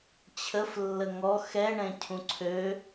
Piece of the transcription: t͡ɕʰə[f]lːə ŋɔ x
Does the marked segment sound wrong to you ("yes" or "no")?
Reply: no